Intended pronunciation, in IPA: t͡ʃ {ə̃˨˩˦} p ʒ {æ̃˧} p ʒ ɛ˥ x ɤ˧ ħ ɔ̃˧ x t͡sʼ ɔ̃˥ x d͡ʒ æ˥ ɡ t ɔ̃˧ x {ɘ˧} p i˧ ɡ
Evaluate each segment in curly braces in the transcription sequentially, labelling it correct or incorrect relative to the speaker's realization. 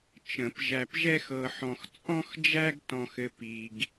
correct, incorrect: æ˧, correct

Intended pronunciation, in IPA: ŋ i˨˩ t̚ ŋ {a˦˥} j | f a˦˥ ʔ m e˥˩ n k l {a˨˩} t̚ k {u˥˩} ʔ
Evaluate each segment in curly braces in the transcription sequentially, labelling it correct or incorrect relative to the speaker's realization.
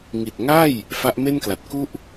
incorrect: a˥˩, correct, correct

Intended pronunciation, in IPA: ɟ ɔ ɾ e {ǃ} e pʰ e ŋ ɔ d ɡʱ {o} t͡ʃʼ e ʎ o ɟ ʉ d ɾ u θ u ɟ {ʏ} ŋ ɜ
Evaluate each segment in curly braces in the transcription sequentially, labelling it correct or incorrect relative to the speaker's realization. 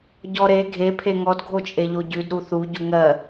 incorrect: ɡʱ, correct, incorrect: u

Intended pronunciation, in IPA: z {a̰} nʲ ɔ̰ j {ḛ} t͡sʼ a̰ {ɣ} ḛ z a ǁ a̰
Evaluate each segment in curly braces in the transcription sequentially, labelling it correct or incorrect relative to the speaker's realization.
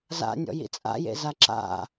correct, incorrect: ḭ, incorrect: j

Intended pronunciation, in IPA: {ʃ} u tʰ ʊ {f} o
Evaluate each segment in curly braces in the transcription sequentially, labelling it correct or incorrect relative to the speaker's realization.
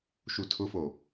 correct, correct

